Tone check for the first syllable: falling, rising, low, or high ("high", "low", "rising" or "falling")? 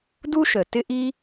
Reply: high